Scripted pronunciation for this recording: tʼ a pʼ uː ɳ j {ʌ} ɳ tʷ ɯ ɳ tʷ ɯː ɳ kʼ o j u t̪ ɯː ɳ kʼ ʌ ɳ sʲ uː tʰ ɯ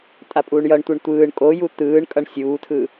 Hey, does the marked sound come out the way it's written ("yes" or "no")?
yes